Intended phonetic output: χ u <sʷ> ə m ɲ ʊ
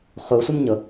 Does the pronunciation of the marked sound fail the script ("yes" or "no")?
no